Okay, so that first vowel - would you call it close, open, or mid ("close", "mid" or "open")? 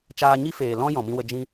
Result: open